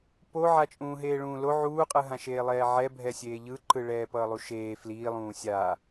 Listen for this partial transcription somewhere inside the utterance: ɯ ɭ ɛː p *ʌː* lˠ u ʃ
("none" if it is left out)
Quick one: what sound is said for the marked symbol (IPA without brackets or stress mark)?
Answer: ʌː